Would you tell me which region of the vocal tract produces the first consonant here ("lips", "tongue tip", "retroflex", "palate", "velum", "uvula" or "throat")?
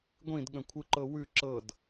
velum